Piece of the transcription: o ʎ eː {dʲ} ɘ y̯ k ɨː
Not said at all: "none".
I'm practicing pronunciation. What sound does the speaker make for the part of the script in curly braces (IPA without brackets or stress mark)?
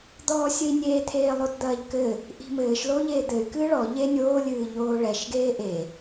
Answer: d̪